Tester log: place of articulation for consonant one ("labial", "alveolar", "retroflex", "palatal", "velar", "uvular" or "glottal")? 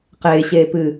uvular